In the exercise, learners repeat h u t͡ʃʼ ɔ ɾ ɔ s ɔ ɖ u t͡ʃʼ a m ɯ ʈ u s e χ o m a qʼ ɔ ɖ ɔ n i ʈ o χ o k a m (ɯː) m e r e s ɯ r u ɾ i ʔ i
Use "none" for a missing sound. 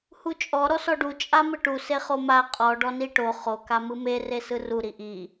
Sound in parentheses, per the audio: ɯ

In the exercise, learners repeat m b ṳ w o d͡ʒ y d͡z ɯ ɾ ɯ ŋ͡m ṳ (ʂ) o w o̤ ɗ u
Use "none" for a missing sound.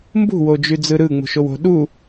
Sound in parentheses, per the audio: ʃ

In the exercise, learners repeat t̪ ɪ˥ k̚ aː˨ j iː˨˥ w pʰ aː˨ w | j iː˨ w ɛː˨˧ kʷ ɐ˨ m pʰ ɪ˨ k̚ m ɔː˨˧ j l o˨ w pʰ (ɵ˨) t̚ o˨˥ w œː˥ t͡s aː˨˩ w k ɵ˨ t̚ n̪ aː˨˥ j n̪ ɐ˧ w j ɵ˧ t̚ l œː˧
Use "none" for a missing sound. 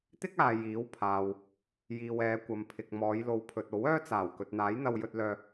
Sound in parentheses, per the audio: ɵ˨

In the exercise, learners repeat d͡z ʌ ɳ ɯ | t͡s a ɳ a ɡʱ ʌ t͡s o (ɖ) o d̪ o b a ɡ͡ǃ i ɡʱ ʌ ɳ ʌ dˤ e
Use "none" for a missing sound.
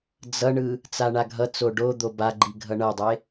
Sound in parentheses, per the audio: ɖ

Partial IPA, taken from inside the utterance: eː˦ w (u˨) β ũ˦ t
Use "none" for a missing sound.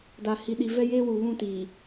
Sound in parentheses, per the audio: u˨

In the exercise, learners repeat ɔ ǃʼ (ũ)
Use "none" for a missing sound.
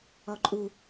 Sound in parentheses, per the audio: u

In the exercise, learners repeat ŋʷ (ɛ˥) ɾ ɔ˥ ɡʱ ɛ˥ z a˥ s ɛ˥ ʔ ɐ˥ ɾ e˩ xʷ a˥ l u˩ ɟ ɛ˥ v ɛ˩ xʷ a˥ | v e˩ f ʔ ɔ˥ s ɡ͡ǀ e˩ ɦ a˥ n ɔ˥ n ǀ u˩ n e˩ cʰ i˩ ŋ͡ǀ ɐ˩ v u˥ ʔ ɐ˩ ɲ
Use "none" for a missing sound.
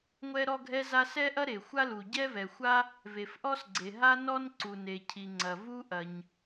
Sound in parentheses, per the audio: ɛ˥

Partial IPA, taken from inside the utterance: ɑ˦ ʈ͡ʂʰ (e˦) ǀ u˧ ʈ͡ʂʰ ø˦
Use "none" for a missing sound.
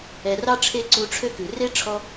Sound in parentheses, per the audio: e˦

